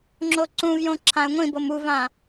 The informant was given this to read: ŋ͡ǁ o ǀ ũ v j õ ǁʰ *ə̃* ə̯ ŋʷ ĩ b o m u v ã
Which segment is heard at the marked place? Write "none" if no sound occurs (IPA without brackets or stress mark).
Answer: ã